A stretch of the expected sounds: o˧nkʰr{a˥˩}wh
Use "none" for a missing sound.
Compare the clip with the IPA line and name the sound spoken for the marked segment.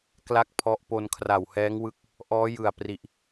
a˨˩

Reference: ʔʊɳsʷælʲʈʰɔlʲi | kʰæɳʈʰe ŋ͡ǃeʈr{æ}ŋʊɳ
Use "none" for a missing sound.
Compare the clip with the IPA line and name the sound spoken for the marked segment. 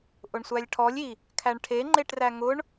æ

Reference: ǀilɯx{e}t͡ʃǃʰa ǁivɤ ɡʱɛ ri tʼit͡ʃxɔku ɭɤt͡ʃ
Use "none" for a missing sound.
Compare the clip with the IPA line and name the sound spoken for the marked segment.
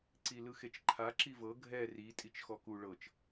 e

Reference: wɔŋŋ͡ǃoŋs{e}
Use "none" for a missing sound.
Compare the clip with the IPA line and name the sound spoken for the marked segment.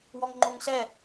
ɛ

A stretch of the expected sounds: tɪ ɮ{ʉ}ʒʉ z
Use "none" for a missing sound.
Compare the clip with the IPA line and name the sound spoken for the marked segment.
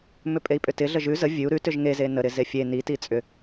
ə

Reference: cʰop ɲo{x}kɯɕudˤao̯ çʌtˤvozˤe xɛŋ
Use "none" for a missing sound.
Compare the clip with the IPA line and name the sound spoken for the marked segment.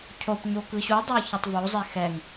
none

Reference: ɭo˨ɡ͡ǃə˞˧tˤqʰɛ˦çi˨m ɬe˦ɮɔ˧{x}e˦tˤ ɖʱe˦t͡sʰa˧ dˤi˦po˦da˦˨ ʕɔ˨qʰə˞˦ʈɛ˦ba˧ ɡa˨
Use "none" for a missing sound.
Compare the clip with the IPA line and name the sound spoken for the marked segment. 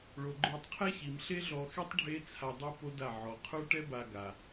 x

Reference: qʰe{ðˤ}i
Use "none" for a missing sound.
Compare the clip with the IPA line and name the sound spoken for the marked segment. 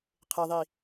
ðˤ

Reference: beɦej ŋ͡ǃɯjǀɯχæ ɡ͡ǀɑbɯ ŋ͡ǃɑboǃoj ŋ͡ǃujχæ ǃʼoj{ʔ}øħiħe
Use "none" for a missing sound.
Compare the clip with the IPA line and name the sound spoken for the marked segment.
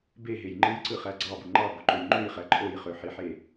χ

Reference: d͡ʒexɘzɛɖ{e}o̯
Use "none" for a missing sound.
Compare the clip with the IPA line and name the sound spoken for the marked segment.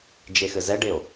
e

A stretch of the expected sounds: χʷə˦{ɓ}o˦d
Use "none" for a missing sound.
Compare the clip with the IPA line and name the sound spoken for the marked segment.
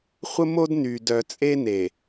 m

